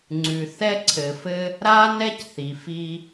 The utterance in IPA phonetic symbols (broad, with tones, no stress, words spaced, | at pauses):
ŋ͡ǀʉ˨ θɛ˦ǀʰɘ˨ fɘ˧ | ɾa˦nɛ˦cθi˨fi˧